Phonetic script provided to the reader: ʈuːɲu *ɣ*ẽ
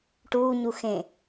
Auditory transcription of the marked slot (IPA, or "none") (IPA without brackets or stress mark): x